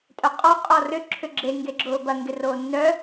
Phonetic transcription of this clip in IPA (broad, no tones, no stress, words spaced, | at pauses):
tʼœqʼɔ qʼɔrʏ ǁʰʏɡ͡ǁe ŋɡeɡ͡ǁʊːbɐ ŋɡɪroːnːœ